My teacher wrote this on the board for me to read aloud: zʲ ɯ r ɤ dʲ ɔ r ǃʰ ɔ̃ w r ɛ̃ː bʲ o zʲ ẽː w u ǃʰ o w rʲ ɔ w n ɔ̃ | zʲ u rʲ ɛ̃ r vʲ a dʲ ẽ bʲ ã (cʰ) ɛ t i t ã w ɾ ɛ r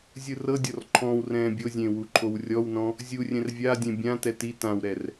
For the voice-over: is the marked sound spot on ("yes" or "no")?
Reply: no